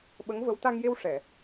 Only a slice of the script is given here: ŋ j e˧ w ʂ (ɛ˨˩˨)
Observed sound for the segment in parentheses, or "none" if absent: ɛ˨˩˨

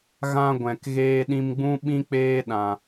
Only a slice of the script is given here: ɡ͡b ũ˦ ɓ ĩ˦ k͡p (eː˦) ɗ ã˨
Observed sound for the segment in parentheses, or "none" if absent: eː˦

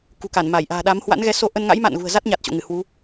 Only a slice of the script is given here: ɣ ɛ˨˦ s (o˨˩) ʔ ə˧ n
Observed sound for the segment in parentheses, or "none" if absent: o˧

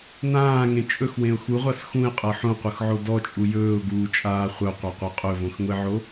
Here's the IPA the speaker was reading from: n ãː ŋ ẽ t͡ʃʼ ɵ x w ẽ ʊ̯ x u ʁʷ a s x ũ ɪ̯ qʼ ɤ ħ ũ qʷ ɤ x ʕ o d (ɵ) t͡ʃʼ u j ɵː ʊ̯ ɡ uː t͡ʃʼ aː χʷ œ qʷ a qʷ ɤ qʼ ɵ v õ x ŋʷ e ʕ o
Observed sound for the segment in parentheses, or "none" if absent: ɔ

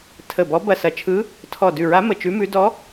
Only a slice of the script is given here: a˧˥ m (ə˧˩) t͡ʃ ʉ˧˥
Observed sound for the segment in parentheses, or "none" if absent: ə˧˩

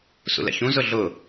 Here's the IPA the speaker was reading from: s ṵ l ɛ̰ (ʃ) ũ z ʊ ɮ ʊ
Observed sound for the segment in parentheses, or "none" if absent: ç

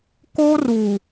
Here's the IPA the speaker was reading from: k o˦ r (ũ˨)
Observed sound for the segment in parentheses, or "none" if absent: u˨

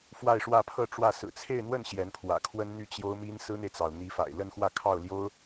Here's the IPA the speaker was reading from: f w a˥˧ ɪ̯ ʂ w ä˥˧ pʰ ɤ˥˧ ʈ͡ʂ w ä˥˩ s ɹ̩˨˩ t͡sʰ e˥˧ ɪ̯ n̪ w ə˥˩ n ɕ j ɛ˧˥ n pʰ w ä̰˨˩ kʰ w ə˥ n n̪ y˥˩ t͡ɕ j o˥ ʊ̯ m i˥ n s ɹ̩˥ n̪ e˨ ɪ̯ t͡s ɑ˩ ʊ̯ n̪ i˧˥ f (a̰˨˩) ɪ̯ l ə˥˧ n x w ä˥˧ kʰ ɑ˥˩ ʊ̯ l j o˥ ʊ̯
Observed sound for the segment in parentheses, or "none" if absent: a̰˨˩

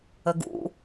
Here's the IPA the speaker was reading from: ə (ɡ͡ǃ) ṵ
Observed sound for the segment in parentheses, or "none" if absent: ɡ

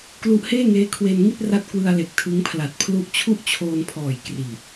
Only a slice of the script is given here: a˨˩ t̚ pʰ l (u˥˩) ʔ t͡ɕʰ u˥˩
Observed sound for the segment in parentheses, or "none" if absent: u˥˩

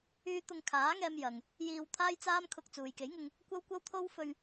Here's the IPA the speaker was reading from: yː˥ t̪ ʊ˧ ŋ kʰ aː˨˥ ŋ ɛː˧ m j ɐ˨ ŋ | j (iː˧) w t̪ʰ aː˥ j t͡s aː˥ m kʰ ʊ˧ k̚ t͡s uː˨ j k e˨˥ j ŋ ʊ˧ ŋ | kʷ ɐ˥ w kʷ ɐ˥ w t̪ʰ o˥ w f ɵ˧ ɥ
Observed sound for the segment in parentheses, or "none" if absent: iː˧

